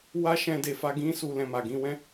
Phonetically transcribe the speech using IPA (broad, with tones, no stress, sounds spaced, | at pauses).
w a˦ ʃ ɛ̃˧ d e˨ f a˧ ɡ ĩ˦ s u˦ l ɛ̃˧ m a˨ ɡ ĩ˧ w ɛ̃˦